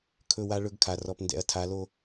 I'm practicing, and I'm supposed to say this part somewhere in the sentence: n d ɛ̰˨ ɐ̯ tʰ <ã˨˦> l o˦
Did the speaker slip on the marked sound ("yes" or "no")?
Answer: yes